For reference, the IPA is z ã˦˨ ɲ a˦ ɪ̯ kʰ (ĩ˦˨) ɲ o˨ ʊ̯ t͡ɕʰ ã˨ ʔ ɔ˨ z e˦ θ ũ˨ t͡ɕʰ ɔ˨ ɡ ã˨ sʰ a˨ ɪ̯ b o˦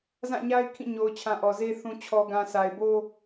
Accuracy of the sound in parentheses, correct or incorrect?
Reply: correct